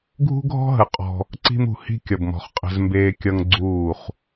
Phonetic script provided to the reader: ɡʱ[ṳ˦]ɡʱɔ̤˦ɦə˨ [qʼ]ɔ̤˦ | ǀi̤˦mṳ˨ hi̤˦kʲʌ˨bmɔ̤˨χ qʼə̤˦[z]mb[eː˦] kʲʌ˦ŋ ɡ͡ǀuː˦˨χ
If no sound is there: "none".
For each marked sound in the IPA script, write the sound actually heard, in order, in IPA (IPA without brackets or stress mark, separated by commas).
ṳ˦, qʼ, z, eː˦